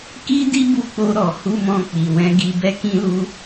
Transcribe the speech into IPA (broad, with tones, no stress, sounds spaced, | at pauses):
k i˦ d i˦ b u˧ k͡p o˧ ɾ ɔ˨ h u˧ m ɔ̃˧ k͡p i˨ w ɛ̃˧ ɡ i˧ b ɛ˦ k ĩ˦ l u˦